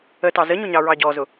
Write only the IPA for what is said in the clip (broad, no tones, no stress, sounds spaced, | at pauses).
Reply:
ə t ɑ z ə ɲ ʊ ɲ ɑ ɹ ɑ ɟ ɔ z ʊ